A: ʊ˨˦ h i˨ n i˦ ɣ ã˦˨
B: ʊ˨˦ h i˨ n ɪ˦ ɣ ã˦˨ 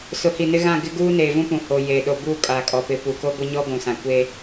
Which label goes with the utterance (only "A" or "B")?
B